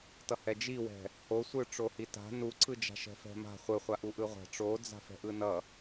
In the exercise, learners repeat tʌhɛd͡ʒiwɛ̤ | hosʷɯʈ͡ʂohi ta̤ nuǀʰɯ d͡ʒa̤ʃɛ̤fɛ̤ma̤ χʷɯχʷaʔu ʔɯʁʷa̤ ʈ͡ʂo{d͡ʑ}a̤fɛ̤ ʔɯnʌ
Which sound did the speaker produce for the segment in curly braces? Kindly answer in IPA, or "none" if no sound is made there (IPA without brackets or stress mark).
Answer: d͡z